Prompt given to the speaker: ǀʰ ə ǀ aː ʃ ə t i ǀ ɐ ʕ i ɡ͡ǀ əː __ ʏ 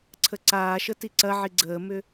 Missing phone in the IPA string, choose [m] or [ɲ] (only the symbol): m